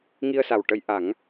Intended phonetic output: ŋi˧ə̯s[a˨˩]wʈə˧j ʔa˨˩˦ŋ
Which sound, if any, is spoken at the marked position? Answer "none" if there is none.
a˨˩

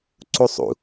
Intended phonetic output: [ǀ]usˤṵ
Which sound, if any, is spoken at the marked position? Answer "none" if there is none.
ǀ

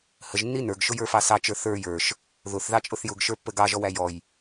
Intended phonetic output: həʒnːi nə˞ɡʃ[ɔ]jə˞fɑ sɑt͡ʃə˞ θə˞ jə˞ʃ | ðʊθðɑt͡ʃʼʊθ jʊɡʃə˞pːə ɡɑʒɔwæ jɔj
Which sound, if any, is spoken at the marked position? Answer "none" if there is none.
ʊ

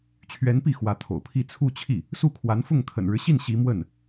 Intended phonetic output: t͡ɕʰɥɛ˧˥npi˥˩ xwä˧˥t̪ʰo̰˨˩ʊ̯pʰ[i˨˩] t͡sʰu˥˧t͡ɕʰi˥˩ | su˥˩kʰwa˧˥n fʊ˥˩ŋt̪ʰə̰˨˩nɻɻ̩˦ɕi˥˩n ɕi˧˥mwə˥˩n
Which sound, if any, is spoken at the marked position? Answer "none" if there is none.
i˥˧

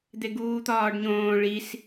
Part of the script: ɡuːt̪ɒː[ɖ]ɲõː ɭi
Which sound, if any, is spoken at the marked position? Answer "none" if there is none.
ɖ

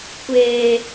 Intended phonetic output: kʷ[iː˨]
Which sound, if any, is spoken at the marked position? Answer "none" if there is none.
eː˨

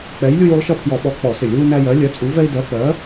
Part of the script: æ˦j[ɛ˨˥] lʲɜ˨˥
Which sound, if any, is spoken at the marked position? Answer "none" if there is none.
ɜ˨˥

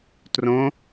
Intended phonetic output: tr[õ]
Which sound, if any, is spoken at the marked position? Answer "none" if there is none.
õ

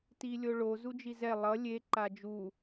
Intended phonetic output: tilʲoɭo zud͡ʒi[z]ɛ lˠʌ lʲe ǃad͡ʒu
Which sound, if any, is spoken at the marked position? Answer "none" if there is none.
z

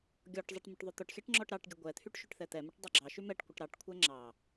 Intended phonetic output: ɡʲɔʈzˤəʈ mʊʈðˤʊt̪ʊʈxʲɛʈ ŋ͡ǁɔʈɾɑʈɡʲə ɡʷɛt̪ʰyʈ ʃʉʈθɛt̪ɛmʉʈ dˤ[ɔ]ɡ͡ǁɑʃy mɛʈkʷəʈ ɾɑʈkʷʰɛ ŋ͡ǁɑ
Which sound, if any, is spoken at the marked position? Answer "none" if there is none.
ɑ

